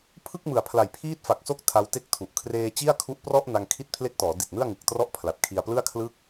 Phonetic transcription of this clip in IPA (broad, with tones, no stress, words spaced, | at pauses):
pʰɯ˥˩k̚mɯ˨˩a̯pʰla˨˩j pʰiː˥˩t̚fa˨˩k̚so˥˩k̚ tʰa˦˥wte˥˩k̚tʰu˨˩ʔ kʰreː˧t͡ɕi˥˩a̯kʰu˦˥ʔprɔ˥˩ʔ na˧ŋkʰi˥˩t̚ pʰle˦˥k̚tɔː˩˦ di˨˩t̚nɯ˥˩a̯ ŋɯ˨˩k̚trɔ˥˩ʔ pʰla˨˩t̚kʰi˧a̯plɯ˥˩a̯kʰlɯ˥˩k̚